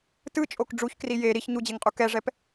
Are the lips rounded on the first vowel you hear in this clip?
no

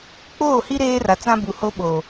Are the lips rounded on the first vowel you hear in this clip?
yes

